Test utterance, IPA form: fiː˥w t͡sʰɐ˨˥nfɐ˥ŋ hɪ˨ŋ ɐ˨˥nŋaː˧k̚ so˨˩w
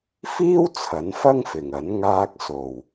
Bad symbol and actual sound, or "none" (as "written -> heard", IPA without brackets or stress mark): h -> f